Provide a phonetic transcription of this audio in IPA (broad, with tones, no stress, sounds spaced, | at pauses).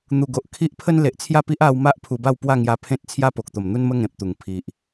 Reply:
n̪ u˨˩ ɡ o˨ ʔ kʰ i˦ ʔ pʰ ə˦ n l e˨ ʔ t͡sʰ j a˥˧ p i˦ ʔ a˧ w m a˦ ʔ pʰ u˧ b a˥˧ w p w a˥˧ ŋ j a˧ pʰ ẽ˦ t̚ t͡sʰ j a˦ p o˨ k̚ t̪ o˨˩ m n̪ u˦ n m ə˦ ŋ ẽ˨ p̚ t̪ u˨˩ ŋ pʰ i˨ ʔ